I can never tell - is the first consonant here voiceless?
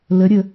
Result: no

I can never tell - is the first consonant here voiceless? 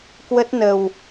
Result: yes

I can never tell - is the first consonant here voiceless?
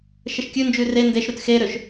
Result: yes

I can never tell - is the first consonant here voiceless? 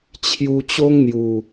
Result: yes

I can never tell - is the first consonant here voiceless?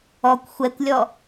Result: yes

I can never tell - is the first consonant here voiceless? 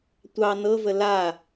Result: yes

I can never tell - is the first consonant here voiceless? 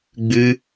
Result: no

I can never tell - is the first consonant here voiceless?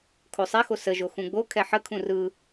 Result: yes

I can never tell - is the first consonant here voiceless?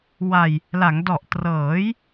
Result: no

